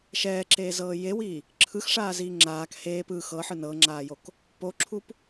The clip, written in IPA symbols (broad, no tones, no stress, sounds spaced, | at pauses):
ʃ ɛː ǁ eː z ɤː j e w iː | ǁʰ ɯ x ʂ aː z iː ŋ͡ǁ aː k h eː p ɯ x ɤ ħ ɯ n ɤ ŋ͡ǁ aː j o k | p o ǁʰ u p